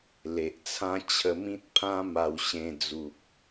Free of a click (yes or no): yes